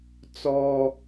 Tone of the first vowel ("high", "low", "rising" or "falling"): high